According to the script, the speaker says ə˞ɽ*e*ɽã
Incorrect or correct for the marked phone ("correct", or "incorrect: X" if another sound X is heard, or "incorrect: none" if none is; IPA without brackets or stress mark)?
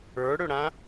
incorrect: ø